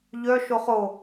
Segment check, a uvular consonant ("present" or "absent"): present